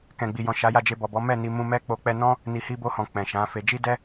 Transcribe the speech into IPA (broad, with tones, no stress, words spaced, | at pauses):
kɛ̃˨ɡ͡bi˨jɔ̃˨ ʃa˨˦ja˦˨d͡ʒe˧ bɔ˨bɔ˨˦ mɛ˦˨ni˧ mũ˧ mɛ˦k͡po˧k͡pɛ˦ nɔ̃˦ | ni˨hi˧bo˧hɔ̃˨ k͡pɛ̃˨ʃã˨˦fe˧ d͡ʒi˦dɛ˦